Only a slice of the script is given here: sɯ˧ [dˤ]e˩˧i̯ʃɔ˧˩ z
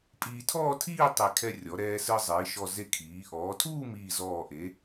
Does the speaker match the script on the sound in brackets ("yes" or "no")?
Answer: no